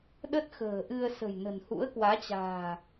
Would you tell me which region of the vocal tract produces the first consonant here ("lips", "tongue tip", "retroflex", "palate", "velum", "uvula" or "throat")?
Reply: tongue tip